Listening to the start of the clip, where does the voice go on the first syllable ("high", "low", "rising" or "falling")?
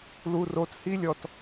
low